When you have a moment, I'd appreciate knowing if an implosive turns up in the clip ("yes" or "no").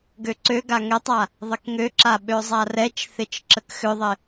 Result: yes